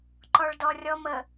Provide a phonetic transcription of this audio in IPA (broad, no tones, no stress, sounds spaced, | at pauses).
ǃ ɔ ɭ d ɔ rʲ ɔ m ə